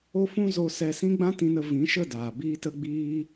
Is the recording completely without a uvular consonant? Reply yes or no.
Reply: yes